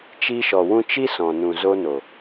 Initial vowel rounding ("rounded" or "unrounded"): unrounded